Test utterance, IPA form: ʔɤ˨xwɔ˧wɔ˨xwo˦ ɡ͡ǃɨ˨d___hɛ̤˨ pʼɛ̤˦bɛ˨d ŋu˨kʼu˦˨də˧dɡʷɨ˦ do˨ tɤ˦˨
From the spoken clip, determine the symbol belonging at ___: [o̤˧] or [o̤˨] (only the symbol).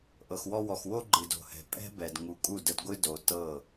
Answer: o̤˨